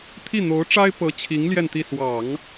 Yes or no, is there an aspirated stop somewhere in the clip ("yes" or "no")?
yes